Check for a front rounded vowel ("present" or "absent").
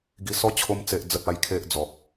absent